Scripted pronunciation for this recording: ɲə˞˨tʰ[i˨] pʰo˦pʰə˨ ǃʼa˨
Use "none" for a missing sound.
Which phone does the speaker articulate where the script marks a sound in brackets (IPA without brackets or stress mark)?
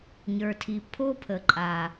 i˨